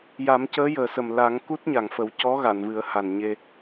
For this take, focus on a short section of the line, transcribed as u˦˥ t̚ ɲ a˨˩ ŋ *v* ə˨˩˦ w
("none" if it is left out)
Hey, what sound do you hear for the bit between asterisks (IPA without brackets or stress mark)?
f